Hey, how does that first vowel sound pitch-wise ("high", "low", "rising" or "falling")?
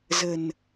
low